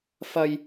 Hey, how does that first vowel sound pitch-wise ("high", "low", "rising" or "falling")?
high